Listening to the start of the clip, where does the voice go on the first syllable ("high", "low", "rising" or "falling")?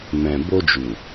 low